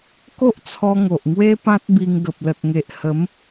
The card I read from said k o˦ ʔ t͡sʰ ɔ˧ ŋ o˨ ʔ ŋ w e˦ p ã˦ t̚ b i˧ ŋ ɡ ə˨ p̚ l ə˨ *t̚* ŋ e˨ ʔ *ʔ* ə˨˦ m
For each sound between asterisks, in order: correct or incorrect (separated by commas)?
correct, incorrect